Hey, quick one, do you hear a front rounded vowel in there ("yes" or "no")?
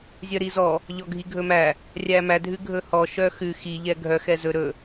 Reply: yes